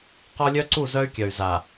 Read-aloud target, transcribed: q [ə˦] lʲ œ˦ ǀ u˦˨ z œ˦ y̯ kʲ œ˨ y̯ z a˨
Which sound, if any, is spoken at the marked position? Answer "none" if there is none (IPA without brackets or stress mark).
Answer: ɔ˦